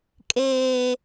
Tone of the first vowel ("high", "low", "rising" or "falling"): low